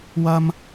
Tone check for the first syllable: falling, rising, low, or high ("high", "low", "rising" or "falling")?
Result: high